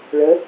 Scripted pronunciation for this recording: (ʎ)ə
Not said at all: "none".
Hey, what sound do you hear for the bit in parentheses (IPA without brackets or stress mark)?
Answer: ɭ